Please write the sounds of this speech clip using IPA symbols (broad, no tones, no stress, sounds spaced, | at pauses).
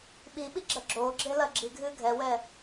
ɓ i ɓ i ɡ͡ǁ ɐ ɡ͡ǁ o ɡ͡ǁ e l ɐ ɡ͡ǁ i ɡʱ ɨ ɡʱ ɛ w ɛ